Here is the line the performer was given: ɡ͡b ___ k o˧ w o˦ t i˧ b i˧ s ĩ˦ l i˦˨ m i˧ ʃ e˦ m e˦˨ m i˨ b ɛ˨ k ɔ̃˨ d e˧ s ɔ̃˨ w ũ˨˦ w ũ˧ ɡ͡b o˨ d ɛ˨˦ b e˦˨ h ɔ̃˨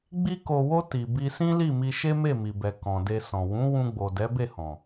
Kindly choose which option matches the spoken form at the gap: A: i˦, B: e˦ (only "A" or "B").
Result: A